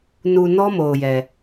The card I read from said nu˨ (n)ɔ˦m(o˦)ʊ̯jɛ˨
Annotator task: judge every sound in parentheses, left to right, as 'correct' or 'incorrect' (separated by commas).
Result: correct, incorrect